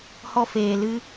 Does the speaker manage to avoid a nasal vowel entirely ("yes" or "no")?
yes